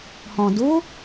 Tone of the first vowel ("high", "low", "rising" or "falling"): low